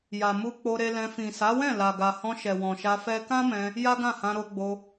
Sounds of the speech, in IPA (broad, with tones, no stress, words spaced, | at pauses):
ja˨mu˧ k͡po˧ɾe˧lɛ̃˧ fĩ˨sa˨˦wɛ̃˦˨ la˨ ɡa˨hɔ̃˧ ʃɛ˨wɔ̃˨ʃa˧ fɛ˦ kã˦mɛ̃˧ | ja˦ɡã˦˨hã˧ ɾo˧ɡ͡bo˧